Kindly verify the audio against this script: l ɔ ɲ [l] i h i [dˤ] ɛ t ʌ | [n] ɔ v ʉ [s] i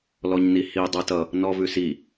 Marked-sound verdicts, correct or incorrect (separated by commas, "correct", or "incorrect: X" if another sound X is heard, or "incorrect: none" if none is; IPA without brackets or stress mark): incorrect: n, correct, correct, correct